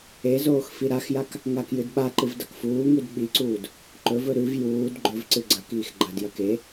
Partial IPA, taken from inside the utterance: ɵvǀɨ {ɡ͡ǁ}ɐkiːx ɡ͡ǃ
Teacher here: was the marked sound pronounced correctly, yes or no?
no